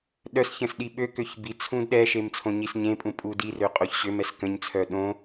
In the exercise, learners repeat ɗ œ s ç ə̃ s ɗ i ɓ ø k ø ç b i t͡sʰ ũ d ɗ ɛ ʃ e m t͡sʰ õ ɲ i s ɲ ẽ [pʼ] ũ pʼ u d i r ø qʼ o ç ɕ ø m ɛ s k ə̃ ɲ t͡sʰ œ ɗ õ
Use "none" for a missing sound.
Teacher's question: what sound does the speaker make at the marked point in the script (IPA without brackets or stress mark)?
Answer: pʼ